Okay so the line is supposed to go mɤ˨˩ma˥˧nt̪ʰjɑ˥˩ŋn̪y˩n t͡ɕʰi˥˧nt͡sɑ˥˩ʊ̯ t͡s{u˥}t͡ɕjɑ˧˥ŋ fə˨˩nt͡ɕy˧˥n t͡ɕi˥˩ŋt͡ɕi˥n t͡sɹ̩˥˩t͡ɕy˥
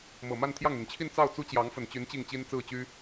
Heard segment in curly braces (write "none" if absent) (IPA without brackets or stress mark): u˥